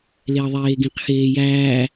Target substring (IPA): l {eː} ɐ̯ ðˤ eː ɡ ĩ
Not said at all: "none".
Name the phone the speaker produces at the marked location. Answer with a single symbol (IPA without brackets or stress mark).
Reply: e